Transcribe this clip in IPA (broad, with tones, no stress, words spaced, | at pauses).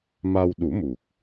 ma˧wɗu˨˩˦mu˨˩k̚